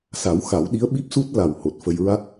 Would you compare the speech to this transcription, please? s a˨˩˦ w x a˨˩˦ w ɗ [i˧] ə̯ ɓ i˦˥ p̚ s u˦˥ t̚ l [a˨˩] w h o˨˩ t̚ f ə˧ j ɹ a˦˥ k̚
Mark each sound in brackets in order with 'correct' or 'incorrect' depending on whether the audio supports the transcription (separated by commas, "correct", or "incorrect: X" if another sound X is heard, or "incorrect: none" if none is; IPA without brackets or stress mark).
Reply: incorrect: i˧˥, correct